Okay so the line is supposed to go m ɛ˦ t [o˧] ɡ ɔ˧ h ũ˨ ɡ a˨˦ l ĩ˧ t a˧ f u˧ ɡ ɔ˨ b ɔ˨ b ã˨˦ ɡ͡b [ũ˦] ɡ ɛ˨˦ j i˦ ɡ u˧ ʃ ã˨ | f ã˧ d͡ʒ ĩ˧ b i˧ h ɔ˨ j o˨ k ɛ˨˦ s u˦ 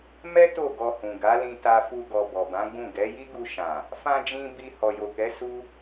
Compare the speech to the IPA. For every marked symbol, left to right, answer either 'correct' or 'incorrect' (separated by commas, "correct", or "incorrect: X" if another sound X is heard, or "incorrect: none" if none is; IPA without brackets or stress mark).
incorrect: o˦˨, incorrect: ũ˦˨